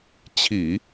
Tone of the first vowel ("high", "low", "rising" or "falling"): low